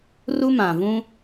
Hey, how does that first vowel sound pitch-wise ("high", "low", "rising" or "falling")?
high